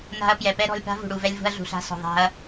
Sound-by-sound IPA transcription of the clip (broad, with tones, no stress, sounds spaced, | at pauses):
n a̤˧ ɐ̯ p j ɛ˨ p ɛ˦ ɾ ɔ̤˧ lʲ p a̤˦ v ṳ˨ ɽ u˨ v ɛ˧ lʲ v ṳ˧ ɐ̯ ɮ ṳ˨ ɬ a̤˧ s ɔ̤˨ ðˤ a̤˧ ɐ̯